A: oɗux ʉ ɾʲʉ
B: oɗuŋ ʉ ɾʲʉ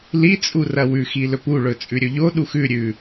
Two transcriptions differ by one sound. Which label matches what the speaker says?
A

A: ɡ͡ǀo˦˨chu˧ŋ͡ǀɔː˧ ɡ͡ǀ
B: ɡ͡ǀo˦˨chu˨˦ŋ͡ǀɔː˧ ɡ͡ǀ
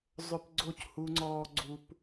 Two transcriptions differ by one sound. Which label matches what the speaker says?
A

